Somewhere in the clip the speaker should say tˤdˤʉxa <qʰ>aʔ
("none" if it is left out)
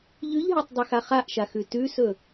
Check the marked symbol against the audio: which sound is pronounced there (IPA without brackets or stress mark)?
χ